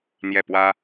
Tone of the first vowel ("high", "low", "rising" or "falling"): falling